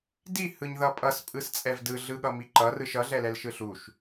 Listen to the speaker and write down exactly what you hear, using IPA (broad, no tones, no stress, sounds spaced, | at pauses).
d i h ɯ ɲ ð ʌ pʼ ʌ s pʼ ɯ s t͡sʼ ɛ v d ɯ ɮ ɯ ɠ ʌ m i ǃ ʌ r ɯ ʃ ʌ ɮ ɛ l ɛ l ʃ ɯ ɬ u ʃ